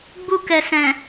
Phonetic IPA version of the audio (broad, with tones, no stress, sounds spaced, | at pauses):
ɡ͡b u˧ k ɛ˨ s ɛ̃˨